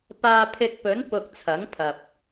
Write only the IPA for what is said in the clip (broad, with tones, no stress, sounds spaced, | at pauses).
p aː˧ pʰ ɪ˧ k̚ p ɵ˨˥ n p ʊ˧ k̚ t͡sʰ ɐ˨˥ ŋ pʰ ɐ˨ p̚